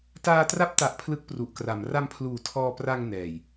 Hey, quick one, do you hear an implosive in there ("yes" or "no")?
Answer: no